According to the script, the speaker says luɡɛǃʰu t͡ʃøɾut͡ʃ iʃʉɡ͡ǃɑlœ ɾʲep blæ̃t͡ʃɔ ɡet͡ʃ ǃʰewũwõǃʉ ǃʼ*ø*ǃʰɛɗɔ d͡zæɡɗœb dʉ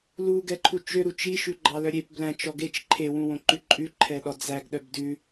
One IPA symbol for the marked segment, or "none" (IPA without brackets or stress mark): ʉ